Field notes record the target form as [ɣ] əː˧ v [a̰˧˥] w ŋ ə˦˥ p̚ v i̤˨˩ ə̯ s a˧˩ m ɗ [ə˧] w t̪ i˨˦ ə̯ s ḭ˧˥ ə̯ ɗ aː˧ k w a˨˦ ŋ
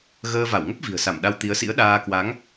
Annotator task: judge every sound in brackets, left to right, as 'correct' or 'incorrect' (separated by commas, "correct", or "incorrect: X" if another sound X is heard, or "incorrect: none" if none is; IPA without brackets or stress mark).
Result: correct, incorrect: a˧˩, incorrect: a˧